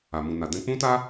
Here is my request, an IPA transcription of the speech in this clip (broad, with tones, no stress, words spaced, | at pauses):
a˨mũ˨na˨ dɛ̃˧k͡pũ˦ta˦